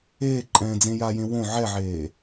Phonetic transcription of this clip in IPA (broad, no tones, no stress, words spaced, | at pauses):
eːǃʼɛ̃ːd͡zẽ jajẽ wõ ʕɛʕeː